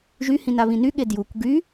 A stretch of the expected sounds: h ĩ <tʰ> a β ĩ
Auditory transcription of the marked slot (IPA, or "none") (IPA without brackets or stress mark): n